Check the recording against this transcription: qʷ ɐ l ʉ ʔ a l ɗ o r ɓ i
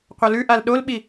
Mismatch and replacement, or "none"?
r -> l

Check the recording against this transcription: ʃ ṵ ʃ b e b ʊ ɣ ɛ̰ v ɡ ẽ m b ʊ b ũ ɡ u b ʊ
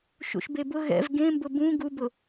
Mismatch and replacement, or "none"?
none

